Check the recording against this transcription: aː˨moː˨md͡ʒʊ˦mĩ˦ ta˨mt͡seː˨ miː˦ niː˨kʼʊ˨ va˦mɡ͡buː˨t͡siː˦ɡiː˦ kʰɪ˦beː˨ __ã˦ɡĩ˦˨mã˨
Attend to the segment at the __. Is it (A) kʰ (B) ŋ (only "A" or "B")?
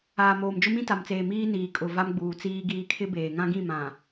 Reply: B